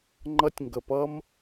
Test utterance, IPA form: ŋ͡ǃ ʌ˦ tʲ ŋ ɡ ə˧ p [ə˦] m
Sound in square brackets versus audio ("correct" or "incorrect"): incorrect